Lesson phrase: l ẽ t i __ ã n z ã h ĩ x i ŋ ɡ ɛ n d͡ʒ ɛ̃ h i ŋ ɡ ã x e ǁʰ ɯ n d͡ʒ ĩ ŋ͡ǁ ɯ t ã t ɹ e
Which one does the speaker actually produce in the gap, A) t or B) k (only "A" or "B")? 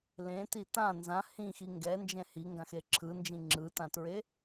A